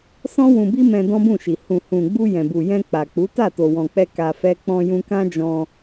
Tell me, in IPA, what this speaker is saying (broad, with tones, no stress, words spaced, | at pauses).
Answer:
sɔ̃˦ wũ˧bi˦mɛ̃˧ dɔ̃˦bũ˦˨ʃi˨ hũ˨ hũ˨ɡ͡bu˧ jɛ̃˨bu˨jɛ̃˧ k͡pa˨k͡pu˨˦ ta˦˨to˨wɔ̃˨k͡pɛ˧ ka˧fɛ˦ k͡pɔ̃˧jũ˧kã˦d͡ʒɔ̃˧